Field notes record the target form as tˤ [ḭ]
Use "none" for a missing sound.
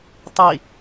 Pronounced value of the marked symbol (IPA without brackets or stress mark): i